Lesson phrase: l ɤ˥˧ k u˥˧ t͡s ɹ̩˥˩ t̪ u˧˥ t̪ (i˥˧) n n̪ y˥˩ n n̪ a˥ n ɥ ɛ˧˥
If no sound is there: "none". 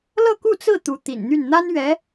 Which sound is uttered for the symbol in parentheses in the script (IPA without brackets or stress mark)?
ḭ˨˩